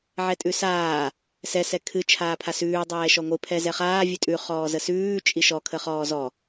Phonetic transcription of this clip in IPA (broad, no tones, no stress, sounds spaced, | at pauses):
ʕ ɛ tʼ ʉ s aː | s ɛ s ɛ kʰ ɨ t͡ʃʰ aː pʰ a s ʉː dˤ ɛː ʃ ɔ ŋʷ ɨ pʰ ɛ z ɛ χ aː vʲ ʉ tʼ ʉ χ ɔː z ə s ʉː t͡ʃʼ i ʃ ɔ kʰ ə χ ɔː z ɔ